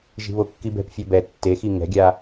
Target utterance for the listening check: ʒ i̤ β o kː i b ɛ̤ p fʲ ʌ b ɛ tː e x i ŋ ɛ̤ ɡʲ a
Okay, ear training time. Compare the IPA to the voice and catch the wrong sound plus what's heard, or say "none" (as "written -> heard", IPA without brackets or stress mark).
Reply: none